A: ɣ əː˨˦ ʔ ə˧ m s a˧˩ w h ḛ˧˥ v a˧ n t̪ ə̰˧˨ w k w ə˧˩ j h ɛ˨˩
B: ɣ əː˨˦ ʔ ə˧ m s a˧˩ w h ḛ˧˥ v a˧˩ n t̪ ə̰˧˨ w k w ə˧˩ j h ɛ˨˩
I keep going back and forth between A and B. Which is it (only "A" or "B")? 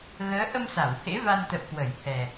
A